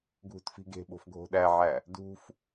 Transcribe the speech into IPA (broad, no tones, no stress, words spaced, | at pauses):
ɡʱṳtfi̤ɡe̤ɓo̤f ɡʱo̤ɗæʕæ | dṳf